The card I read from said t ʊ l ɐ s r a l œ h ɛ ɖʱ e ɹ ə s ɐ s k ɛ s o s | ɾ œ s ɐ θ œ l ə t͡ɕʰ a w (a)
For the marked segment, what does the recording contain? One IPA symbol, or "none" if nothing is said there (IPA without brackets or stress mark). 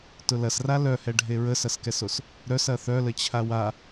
a